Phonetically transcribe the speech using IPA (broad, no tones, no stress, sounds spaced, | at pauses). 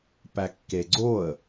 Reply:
p æ kː e ɡ͡ǀ o ə̯